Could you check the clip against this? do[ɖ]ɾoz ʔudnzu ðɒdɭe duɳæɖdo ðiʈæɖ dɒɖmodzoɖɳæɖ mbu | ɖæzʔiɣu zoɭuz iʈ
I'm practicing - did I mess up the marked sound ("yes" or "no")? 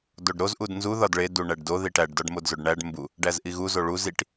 no